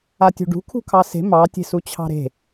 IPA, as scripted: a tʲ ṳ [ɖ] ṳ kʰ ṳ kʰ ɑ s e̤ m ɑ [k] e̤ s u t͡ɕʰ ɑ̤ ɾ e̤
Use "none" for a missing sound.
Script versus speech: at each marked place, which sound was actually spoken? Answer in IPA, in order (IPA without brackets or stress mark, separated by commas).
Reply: ɖ, tʲ